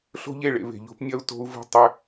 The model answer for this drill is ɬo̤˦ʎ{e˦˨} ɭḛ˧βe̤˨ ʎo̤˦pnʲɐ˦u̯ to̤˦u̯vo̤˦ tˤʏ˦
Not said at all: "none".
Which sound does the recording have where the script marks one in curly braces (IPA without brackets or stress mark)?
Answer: e˦˨